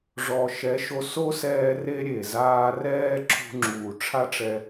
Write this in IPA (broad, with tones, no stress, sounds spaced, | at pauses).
ʐ ɔ˨ ʃ ɛ˨˦ ʃ o˧ s o˦ s ɛː˧ r e˦ ɾʲ e˨ z aː˧ r ɛː˦ ǁʰ ṳ˧ ŋ͡ǁ uː˨ ʈ͡ʂʰ a˦ ʈ͡ʂ ɛ˧